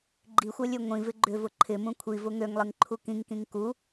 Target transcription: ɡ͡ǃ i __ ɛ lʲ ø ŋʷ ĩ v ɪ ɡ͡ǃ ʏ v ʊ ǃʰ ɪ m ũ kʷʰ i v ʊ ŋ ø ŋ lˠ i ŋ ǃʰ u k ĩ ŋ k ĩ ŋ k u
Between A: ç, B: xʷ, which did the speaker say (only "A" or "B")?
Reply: B